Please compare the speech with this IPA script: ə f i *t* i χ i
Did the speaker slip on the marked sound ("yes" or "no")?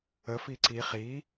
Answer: yes